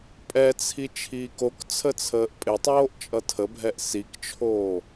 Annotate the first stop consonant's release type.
ejective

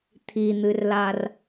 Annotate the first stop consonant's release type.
aspirated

